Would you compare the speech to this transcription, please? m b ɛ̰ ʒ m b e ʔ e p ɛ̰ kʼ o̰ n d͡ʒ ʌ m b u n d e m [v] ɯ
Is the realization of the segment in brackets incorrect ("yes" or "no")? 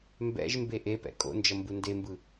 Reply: yes